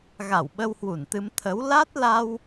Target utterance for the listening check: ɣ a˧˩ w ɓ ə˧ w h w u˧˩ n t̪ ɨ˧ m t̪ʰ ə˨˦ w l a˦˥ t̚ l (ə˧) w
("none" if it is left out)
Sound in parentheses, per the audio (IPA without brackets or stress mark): a˧